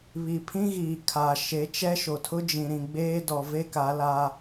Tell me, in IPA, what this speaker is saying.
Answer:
β i˨ pʰ ĩ˦ ɣ iː˨ kʰ a˨ ʃ e˨˦ t͡ʃ ɛ˦ ʃ o˨ tʰ ʊ˦ d͡ʒ ĩ˨ ɾ ĩ˨ ɡ͡b eː˦ d ɔ˨ v e˦ k a˨˦ l a˦

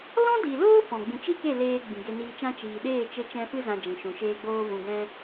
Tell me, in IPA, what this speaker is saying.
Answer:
l ɔ̃˦ d i˨ l oː˦ f ɔ̃˨ ɡ͡b ĩ˨ t͡ʃ i˦ k e˦˨ l eː˧ ɡ͡b ĩ˨ ɡ e˧ n iː˧ t͡ʃ ã˦ t͡ʃ iː˨ ɗ eː˦˨ t͡ʃ e˧ t͡ʃ ɛ̃˧ f ɨ˦ z ã˧ d͡ʒ ĩ˨ ʃ ũ˨ ʃ eː˧ ɡ͡b oː˧ v ũ˨ ɡ ɛ̃˧

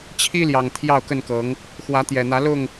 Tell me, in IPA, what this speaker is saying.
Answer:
t͡ɕʰ i˦ l j ɑ˨˩ ŋ t̪ʰ j ɑ˥˨ ʊ̯ k ə˥˨ n k ɤ˨˦ ŋ | x w ä˨˦ t̪ j ɛ˨˩ n̪ ä˨˦ l ʊ˥˨ ŋ

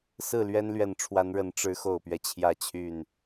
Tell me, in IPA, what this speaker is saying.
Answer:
s ɹ̩˥˨ l ɥ ɛ˦ n l ɥ ɛ˨˩ n ʈ͡ʂʰ w a˨˦ n ɻ ə˨˦ n ʈ͡ʂ ɻ̩˨˦ x o˨˩ ʊ̯ p ɥ ɛ˦ t͡ɕʰ j ä˥˨ t͡ɕʰ y˥˨ n

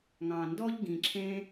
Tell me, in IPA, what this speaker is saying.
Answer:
ŋ ɑ̃˨ n d ɔ˦ ʎ ɡ ĩ˨ ǁʰ ẽ˦

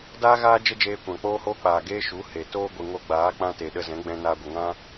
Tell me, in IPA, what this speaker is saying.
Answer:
d aː˦ ɣ aː˦ d͡ʒ ə˦ d͡ʒ eː˧ kʷ ã˨ k͡p oː˦ h oː˦ k͡p aː˨ ɡ eː˦ ʃ u˨˦ h e˨ t oː˦ ɡʷ ɨ˨ ŋ o˧ ɡ͡b aː˨˦ k͡p ã˧ t e˨ ɗ ə˧ z ɛ̃˨˦ ɡ͡b ɛ̃˧ n aː˧ ɡʷ ə˨ ŋ ã˦

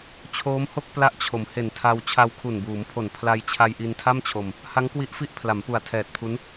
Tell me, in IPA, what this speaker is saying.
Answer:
t͡ɕʰ oː˦˥ m h o˥˩ k̚ p l a˦˥ ʔ t͡ɕʰ o˩˦ m h e˨˩ n tʰ a˧ w t͡ɕʰ a˧ w kʰ u˨˩ n b uː˩˦ m pʰ o˨˩ n pʰ l a˧ j t͡ɕʰ a˧ j ʔ i˧ n tʰ a˥˩ m t͡ɕʰ o˧ m | h a˦˥ ŋ k w i˦˥ ʔ f i˦˥ ʔ pʰ l a˩˦ m p u˨˩ a̯ tʰ ɛː˨˩ t̚ pʰ u˦˥ n

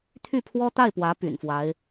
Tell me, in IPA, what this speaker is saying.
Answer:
t̪ʰ y˥˩ pʰ w ɔ˥ t̪ a˥˩ ɪ̯ p w ä˧˥ p y̰˨˩ n f w a˧˥ ɪ̯

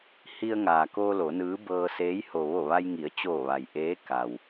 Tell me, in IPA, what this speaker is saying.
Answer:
h i˧ ə̯ ŋ aː˩ k oː˧ l o˩˧ n ɯː˧˥ b ɤː˧ s eː˧˥ j h o˩ ʋ o˧˩ ʋ a˧ j ŋ i˩˧ ə̯ t͡ɕ oː˧˩ ʋ a˩ j ʔ eː˧˥ k a˩ w

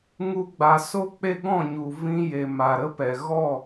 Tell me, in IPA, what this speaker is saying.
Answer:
ŋ u˧ ɡ͡b a˨ s o˦ k͡p e˦ ɡ ɔ̃˦˨ ɲ u˨ v ĩ˧ j e˨ m a˨ ɾ ə˦ p ɛ˨ ɣ ɔ˦˨

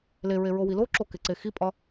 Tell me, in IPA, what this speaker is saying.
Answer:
l e ɹ e ɹ o w i l o ǁ o k e ǀ e x i pʼ ɒ

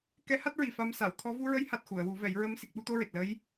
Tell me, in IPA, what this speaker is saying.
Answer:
k ɛ˧˥ h a˦˥ t̚ ɹ i˨˩ f a˧ m s a˨˩˨ w t̪ʰ ɔ˧˥ v u˧ ɹ ə˧˥ j h a˨˩ t̚ x u˨˩˨ ə̯ w u˨˩˦ v ɛ˨˩˦ j ɹ ə˧˥ m s i˨˩ k̚ ɓ u˧ t̪ o˧ ɹ e˨˩ t̚ l ə˧˥ j

